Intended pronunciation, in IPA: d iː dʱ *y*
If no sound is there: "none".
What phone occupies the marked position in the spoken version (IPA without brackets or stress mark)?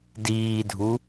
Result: u